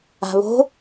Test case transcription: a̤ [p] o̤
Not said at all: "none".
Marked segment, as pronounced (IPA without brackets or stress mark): β